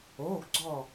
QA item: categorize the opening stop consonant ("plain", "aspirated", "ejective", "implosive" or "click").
plain